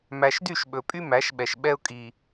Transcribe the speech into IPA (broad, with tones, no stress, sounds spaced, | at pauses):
m æ˨ ʃ d y˦˨ ʃ ɓ ɵ˨ pʼ y˦ m æ˨˦ ʃ ɓ ɛ˨ ʃ ɓ ɛ˦ ʊ̯ kʼ i˨